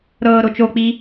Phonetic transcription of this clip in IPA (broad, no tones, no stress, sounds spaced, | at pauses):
ɾ ɤː ɾ o t͡ʃ o k͡p iː